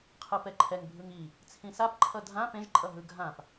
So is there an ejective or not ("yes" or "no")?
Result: yes